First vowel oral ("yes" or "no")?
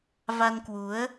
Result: yes